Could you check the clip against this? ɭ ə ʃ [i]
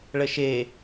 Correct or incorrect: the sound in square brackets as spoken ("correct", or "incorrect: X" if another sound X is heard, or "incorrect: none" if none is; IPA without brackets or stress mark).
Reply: incorrect: e